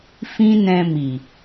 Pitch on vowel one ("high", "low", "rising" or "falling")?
high